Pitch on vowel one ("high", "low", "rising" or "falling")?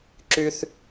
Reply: high